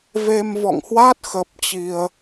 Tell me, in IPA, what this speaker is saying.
v e˧ m v ɔ̰˧˨ ŋ h w a˦˥ t̚ x ə˦˥ p̚ t͡ɕ i˧ ə̯

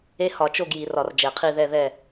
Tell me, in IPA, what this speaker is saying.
e˦˥ h ɒ˧˩˧ t͡ʃ o˥˨ ɡ j i˧˩˧ r ɒ˧˩˧ r d͡ʒ ɛ˧˩˧ qʰ i˥˨ ð ɛ˥˨ ð ɛ˥˨

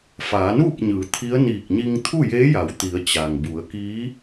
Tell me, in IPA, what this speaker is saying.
f aː˩˧ n uː˥˨ p̚ ɲ ɯː˩˧ t̪ʰ i˧˥ ə̯ n iː˧˩ k̚ ɲ i˧ ŋ t̪ʰ u˥˨ j eː˧˥ j a˩˧ w t̪ i˩˧ ə̯ t͡ɕ a˩ ŋ b u˩˧ ə̯ k iː˧˥

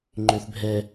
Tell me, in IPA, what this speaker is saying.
ŋ͡ǃ ø θ bʱ ɛ

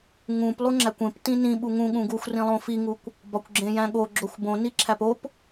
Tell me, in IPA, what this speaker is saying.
ŋ ũ p lˠ u ŋ͡ǁ æ kʷ ẽ p t ĩ n ĩ ɓ u ŋ ũ ɠ ũ ɡ u xʷ r ĩ lˠ õ f i ŋ u kʷ | b ɒ kʷ ɡ͡ǁ ẽ j æ̃ ɠ o ɡ͡ǁ o xʷ b õ n i ǁʰ æ p o p

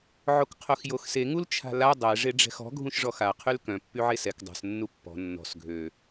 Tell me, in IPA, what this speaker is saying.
ʕ o k qʰ o x j o x s e ŋ u l t͡ʃʰ a̤ l a dˤ ɛ ʐ e ɖ͡ʐ ɛ̤ x ɔ̤ ɡʱ ũ ʃ ʐ ɔ x a qʰ y l k œ̃ pː y ʕ e s ɛ k dˤ a̤ s nː u pː ɔ̤ nː ɔ̤ s ɡʱ ø

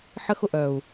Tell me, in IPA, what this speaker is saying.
ħ ə˦ x ʊ˨ ʔ œ˨ u̯

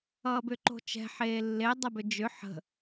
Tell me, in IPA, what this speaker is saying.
ʌː b ʏ ǃ o̤ t͡ʃ ɛ̤ ħ eː lː e dˤ ə b ʏ d͡ʒ ʏ ħ ə̤

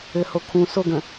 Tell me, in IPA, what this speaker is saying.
ɘ h o kʰ ũ s o ɡ ə̃

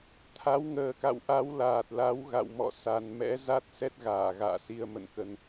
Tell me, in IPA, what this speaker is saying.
t̪ʰ a˨˦ w ŋ əː˨˩ k a̰˧˨ w ʔ a˨˦ w l aː˨˩ t̚ l a˨˦ w ɣ a̰˧˨ w m ɔ̰˧˨ s a˨˩ n m ɛ̰˧˥ z a˦˥ t̚ s ɛ˦˥ t̚ ɣ aː˧˩ ɣ a̰ː˧˨ s i˧ ə̯ m ə̰˧˨ n k ə˧ n

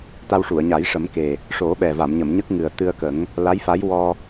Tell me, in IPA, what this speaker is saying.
t̪ a˧ w ʂ u˨˩˨ ə̯ ɲ a˨˩˦ j ʂ ə˨˩˦ m k e˨˩ | ʂ o˨˩˦ ɓ ɛ˨˩ v a˨˩˨ m ɲ ə˨˩˨ m ɲ ə˦˥ k̚ ŋ ɨ˨˩ ə̯ t̪ ɨ˧ ə̯ k ə˨˩˦ ŋ | l a˧˥ j f a˧˥ j w ɔ˧

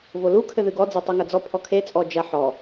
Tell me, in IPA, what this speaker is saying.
v o l u kʰ ɘ ð ɨ ɡ ɔ d͡z e tˤ u ŋ ɐ d͡z ɔ pʰ ɔ kʰ e t͡sʼ ɔ d͡ʒ ɐ ħ ɔ

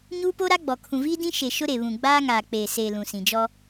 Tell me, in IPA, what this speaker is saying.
ɲ uː˦ p o˦ ɾ a˦ ɡ͡b ɔ˨ kʰ ũ˨ v iː˦ d ĩ˦ ʃ e˨ ʃ ʊ˦ ɾ e˨ β ũ˨ ɡ͡b aː˦ ŋ aː˨ k͡p eː˨ s eː˨ l ũ˨ s ĩ˨ d͡ʒ ɔ˦

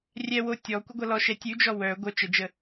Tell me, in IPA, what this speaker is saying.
rʲ ɛ w o tʲ ɔ kʷ ə ɡʷ ʌ l ɔ ʃ ɛ tʲ ʉ d͡ʒ ɔ w œ ɡʷ œ t͡ʃ ə d͡ʒ ə

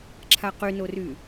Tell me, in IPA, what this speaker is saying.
ǁʰ a q y n o r yː

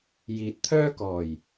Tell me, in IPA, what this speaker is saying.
j iː˨ t̚ t̪ʰ œː˥ k ɔː˨˩ j

